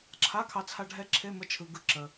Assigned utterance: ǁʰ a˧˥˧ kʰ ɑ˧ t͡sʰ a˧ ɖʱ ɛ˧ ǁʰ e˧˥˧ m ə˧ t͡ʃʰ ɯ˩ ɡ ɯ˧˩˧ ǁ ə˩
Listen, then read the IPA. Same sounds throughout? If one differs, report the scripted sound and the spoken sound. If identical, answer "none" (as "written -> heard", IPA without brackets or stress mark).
none